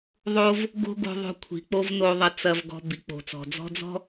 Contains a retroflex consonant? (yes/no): no